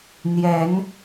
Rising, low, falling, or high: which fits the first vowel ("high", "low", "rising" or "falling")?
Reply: rising